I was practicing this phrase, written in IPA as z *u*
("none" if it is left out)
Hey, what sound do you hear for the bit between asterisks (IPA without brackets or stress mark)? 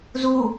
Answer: u